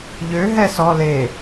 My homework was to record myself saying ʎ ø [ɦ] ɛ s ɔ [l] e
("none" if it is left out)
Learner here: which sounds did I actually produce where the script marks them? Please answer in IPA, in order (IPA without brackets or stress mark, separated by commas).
ɦ, l